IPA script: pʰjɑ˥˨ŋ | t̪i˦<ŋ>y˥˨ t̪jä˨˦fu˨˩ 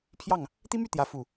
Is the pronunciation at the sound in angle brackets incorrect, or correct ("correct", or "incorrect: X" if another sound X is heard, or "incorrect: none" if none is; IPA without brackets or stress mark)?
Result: incorrect: m